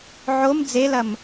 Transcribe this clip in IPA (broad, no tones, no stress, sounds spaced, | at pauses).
ʕ o m d͡z e l ɐ m